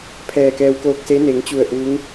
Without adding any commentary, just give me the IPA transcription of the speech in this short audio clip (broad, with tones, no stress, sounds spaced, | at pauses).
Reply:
pʰ ɛː˧˩ k ɛː˧ w k oː˧ k̚ s e˧˥ n e˩˧ ŋ t͡ɕ u˧˩ ə̯ ʔ u˧˥ ŋ